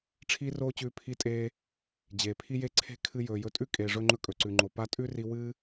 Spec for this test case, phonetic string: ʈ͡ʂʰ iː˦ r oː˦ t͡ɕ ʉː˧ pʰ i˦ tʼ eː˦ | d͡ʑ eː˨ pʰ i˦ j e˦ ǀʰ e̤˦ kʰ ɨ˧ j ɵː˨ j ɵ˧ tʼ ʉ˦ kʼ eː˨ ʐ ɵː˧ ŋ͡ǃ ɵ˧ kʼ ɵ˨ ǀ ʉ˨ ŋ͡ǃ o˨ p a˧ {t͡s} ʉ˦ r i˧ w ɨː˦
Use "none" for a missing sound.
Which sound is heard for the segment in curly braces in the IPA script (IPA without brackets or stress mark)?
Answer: tʼ